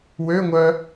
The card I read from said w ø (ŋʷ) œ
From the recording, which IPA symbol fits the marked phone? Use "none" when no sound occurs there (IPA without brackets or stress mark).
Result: ŋʷ